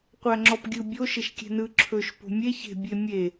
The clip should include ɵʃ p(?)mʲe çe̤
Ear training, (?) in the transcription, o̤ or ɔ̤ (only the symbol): o̤